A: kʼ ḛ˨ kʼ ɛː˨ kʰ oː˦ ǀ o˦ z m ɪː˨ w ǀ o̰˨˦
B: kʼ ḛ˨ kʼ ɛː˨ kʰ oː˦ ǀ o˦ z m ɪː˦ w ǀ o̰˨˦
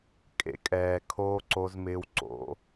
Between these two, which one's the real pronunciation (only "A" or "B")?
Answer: B